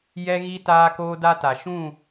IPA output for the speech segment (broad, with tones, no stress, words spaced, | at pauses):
jɛ˦ɣi˦ taː˦koː˦da˦ta˨ ʃũ˦˨